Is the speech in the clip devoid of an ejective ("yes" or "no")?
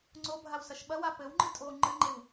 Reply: no